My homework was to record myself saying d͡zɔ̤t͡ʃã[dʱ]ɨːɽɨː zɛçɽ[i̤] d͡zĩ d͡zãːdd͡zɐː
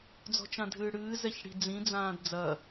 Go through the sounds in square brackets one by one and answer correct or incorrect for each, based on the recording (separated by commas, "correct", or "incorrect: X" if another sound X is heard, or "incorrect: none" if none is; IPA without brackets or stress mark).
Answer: correct, correct